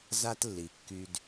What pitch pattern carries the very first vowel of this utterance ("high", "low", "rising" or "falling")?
high